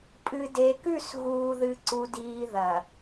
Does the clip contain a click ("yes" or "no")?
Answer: yes